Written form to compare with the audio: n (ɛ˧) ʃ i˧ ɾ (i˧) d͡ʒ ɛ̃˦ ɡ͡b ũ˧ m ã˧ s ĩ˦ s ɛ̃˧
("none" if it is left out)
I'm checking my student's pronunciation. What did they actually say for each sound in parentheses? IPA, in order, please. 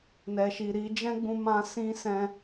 ɛ˧, i˧

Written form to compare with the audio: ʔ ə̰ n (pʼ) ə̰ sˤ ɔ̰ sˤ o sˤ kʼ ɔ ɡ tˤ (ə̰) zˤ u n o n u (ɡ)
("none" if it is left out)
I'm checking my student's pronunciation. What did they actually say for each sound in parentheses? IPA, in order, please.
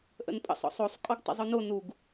pʼ, ə̰, ɡ

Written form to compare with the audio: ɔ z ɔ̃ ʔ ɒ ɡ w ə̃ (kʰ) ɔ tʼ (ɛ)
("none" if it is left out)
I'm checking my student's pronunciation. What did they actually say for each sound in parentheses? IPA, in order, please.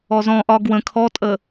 kʰ, ə

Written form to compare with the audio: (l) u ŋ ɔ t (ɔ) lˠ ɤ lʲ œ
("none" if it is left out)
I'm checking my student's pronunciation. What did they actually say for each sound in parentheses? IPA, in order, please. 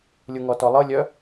lʲ, ɔ

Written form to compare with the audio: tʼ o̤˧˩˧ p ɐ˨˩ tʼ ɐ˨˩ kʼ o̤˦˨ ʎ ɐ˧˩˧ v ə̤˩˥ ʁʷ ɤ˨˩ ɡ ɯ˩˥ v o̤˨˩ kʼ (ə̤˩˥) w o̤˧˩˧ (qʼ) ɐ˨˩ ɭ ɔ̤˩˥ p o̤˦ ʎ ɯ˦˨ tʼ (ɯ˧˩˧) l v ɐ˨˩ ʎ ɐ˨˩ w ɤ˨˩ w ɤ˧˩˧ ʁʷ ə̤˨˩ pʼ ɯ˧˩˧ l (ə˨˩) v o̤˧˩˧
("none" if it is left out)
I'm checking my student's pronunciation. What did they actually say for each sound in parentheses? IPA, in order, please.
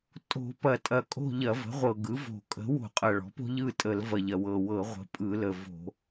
ə̤˩˥, qʼ, ə˧˩˧, ə˨˩

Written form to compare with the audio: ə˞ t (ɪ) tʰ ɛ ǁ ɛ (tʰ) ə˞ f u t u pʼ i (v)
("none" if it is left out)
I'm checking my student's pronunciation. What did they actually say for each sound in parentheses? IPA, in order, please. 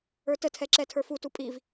ə, tʰ, v

